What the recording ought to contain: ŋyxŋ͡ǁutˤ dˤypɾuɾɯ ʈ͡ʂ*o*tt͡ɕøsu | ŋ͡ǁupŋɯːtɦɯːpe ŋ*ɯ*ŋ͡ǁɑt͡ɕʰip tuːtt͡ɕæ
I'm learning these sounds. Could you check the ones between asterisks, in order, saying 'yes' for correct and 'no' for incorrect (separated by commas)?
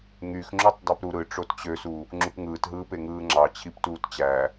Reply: yes, no